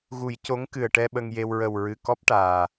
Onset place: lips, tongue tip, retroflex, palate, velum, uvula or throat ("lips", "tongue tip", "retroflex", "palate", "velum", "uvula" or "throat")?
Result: velum